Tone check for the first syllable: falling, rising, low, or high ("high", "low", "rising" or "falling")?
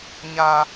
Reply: high